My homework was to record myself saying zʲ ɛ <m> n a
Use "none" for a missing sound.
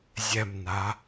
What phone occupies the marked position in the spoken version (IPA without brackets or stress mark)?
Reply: m